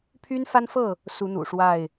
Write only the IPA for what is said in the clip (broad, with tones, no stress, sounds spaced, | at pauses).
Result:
pʰ y˦ n f a˦ n f ɤ˥˨ | s u˨˦ n̪ ṵ˨˩ ʂ w a˥˨ ɪ̯